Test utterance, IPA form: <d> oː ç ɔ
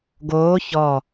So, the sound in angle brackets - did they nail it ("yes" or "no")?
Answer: no